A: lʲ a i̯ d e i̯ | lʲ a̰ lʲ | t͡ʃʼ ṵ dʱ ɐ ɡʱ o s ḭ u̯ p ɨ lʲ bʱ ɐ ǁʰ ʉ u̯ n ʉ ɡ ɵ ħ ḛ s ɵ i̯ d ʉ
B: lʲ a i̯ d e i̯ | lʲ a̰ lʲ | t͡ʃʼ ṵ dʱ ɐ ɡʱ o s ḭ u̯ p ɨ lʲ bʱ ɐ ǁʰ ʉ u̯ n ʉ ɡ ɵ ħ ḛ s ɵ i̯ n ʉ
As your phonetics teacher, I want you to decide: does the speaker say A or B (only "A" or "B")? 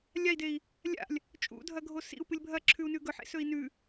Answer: B